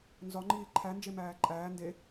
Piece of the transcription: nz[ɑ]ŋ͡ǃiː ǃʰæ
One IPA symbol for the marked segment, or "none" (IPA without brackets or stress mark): ɒ